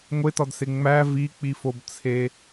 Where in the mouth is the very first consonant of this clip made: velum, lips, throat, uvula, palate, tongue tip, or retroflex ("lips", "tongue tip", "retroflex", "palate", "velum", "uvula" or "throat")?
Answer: velum